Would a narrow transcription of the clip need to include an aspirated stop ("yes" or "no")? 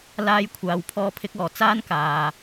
yes